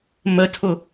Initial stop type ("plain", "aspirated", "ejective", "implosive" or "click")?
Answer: aspirated